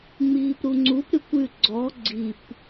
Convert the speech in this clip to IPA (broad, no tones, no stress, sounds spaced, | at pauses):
ŋ͡m iː p ɾ u ŋ͡ǀ u p ɾ ʉ kʷ ʉ ɡ͡ǀ ɔ ɡ͡ǀ i p